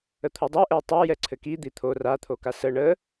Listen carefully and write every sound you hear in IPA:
ə t̪ʰ o dˤ o ʔ ɛ tˤ a j ɛ ǀʰ ɘ k i d̪ i t̪ʰ o r a t̪ʰ o k a s ə ɳ ə

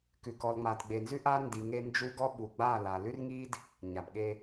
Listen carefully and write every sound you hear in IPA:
k ʉ˨ k ɔ˨ l ŋ͡m a˨ d ɡ͡b e˨ n z ʉ˦ ʔ a˦ n d i˨ ŋ e˦ n d͡ʒ u˦ ɡ ɔ˦ ɓ u˨ ɡ͡b a˦˨ l a˨ l ʉ˦ r ŋ i˦ d | ɲ a˨ b ɠ e˦

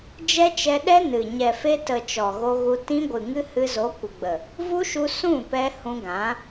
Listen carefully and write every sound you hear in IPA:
d͡ʒ ɛ˦ t͡ʃ ɛ˧ ɗ ɛ˦ n ɨ˨ ɲ ɛ˨ f e˧ t ə˨ t͡ʃ ɔ˨ ɣ o˧ ɣ u˧ t ĩ˧ ɡʷ ɨ˨ ŋ ɨ˧ h ɨ˧ z o˨˦ kʷ ə˨ ɡ͡b ə˨ | v u˦ ʃ u˧ s ũ˦˨ p ɛ˧ h ũ˧ ɡ ã˨˦

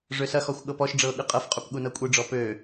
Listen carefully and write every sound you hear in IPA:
ʐ ø s ɐ x ɔ xʷ ɠ ɤ p ɔ ʃ ɖ͡ʐ ɤː ɠ ɯ qʼ ɤ f qʼ u p ɠ u n ɤ kʷʼ ɯ ɖ͡ʐ ɔ p ø

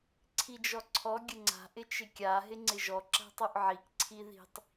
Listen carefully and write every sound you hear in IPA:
ǀʰ i d͡ʒ ɔ ǀʰ ɔ ɡʲ ə ŋ͡ǀ a̤ ʔ ɪ t͡ʃ ɪ kʲ a ɦ ɪ ŋ͡ǀ ɪ ʒ ɔ ǁ a̤ tˤ u ʔ ʕ i k ǀʰ i ð i̤ tˤ

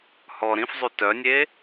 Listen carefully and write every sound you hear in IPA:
h ɔ ɾ ĩ f zˤ y t œ nʲ e

